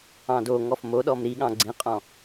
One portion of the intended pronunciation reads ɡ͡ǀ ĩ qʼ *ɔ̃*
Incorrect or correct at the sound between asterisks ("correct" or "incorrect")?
correct